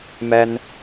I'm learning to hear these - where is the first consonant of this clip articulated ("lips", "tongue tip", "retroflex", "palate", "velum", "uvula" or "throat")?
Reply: lips